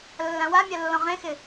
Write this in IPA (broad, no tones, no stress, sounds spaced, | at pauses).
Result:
lː ã w a mʲ a lː ɔ̃ ʁ ẽ x ɪ